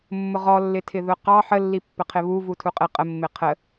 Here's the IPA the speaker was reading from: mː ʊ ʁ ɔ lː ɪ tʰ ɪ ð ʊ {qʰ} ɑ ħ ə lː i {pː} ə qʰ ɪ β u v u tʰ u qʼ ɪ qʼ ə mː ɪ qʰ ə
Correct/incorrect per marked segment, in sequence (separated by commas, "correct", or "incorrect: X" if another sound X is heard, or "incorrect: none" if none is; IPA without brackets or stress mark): incorrect: q, correct